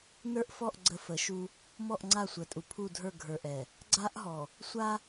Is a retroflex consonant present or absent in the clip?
absent